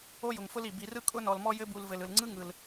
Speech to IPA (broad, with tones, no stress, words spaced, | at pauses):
o˦jʊ˩ŋfʊ˦l i˩bi˨rɯ˥ kʼʊ˥nɔ˨lmɔ˥ jɘ˦bu˨lvɘ˩l ɯ˩lŋ͡ǀɯ˦ ŋɯ˩l